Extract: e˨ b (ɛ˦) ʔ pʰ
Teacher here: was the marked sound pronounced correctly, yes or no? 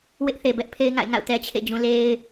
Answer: yes